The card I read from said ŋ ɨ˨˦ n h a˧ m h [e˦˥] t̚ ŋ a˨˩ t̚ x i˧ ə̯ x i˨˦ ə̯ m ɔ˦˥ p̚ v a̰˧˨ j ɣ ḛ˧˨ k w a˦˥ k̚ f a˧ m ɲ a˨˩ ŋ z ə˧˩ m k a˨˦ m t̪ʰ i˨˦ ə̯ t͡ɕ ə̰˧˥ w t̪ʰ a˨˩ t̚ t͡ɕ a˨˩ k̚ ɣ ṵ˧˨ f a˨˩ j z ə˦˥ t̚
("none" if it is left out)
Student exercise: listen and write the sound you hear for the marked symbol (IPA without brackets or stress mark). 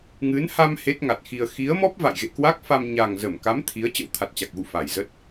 e˦˥